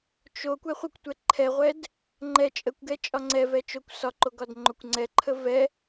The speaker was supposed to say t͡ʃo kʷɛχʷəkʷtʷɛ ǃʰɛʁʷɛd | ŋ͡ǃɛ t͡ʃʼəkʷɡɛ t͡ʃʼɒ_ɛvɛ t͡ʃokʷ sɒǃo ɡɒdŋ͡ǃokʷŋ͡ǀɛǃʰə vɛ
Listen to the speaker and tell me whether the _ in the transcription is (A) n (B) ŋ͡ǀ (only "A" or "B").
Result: B